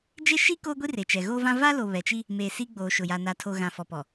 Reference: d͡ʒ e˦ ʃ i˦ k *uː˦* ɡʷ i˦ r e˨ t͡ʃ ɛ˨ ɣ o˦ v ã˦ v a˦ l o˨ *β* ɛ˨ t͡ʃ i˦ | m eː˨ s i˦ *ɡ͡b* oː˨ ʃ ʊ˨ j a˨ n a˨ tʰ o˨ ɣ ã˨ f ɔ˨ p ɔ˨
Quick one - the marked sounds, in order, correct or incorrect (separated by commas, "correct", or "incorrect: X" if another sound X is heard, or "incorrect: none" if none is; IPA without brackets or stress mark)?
incorrect: oː˦, correct, correct